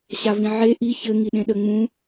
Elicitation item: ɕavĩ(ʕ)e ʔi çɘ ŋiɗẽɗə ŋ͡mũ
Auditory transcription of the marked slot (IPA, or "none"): ʕ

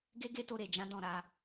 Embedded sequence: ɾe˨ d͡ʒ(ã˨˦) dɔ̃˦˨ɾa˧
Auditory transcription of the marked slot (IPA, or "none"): ã˨˦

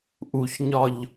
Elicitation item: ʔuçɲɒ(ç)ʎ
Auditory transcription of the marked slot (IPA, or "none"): none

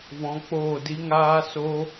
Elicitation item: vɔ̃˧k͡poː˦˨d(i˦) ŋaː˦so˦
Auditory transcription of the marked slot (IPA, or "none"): i˦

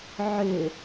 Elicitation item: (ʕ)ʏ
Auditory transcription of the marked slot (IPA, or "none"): ʕ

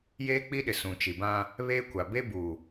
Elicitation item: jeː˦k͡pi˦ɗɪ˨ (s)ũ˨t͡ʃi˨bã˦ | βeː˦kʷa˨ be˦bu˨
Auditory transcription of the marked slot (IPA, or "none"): s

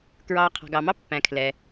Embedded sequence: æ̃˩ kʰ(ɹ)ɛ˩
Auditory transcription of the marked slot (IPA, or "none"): l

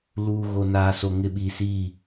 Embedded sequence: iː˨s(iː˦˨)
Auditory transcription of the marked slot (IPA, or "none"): iː˦˨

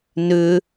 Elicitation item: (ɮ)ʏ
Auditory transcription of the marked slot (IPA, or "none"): n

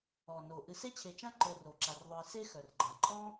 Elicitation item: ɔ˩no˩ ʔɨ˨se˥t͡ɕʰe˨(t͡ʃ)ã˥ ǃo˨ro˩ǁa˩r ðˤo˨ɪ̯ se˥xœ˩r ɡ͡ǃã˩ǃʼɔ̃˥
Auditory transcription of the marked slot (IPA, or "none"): t͡ʃ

